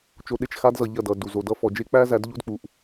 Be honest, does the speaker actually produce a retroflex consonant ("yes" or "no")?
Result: no